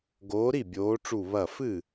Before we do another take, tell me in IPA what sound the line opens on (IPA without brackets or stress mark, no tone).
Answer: ɡ